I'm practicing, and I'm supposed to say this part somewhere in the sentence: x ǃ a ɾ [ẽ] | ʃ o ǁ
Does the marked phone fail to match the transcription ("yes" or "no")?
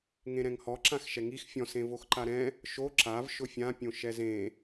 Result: yes